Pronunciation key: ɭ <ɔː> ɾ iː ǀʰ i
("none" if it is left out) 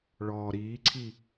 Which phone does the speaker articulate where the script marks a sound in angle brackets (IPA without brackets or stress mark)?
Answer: ɔː